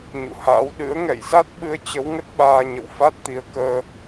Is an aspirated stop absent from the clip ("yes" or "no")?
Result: yes